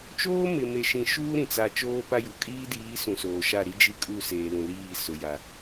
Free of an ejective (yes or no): no